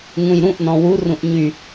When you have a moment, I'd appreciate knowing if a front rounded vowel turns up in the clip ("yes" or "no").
yes